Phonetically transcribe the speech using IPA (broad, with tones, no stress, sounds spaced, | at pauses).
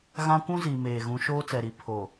ɣ ã˦ kʷ ũ˦ z i˨ m eː˨ ɣ ũ˨˦ ʃ oː˦ t͡s ɛ˨ ɾ i˨ pʰ o˨